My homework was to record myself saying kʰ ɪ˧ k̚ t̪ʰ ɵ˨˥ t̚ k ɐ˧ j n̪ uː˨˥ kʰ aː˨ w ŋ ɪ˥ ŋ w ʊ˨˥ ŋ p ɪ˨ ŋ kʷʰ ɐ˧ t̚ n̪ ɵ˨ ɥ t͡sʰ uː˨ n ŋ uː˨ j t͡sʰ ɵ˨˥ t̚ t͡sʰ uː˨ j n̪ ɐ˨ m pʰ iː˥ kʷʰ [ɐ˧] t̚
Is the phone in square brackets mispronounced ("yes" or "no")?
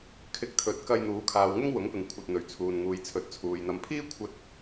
yes